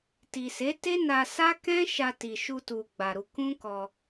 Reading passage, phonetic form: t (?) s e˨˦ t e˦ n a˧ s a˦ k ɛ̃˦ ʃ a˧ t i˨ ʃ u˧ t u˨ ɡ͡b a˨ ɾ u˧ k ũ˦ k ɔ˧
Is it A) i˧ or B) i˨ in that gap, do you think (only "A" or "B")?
B